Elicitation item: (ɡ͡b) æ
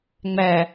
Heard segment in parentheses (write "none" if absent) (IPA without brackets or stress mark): ŋ͡m